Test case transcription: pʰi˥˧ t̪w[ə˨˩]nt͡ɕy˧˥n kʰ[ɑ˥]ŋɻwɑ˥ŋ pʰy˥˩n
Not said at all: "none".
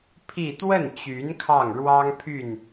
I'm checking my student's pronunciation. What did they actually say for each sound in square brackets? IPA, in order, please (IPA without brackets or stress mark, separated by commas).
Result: ə˥˩, ɑ˥˩